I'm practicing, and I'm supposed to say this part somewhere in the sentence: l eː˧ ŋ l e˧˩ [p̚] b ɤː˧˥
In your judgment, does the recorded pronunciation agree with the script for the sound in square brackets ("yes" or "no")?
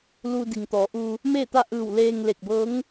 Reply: no